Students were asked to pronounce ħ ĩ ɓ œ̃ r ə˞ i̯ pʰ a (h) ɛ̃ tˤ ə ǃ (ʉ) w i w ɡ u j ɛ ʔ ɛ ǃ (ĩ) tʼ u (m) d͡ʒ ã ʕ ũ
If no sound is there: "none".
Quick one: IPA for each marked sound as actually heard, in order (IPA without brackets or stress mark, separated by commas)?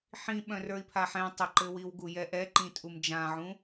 ħ, ɘ, ĩ, m